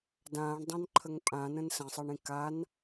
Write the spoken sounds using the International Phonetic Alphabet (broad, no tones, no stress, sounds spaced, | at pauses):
d ãː ɳ dˤ ã n ǃʰ ə ŋ pʼ ã n ə̃ n s ə̃ sˤ ə ɳ ĩ k a n